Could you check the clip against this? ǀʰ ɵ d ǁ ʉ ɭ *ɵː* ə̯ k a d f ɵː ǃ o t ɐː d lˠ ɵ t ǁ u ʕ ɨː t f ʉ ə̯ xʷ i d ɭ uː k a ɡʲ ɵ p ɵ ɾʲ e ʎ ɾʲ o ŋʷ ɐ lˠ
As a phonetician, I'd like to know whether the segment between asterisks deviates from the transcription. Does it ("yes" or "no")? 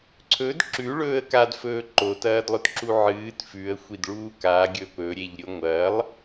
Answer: no